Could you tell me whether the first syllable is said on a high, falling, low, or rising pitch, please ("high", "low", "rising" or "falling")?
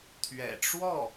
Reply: low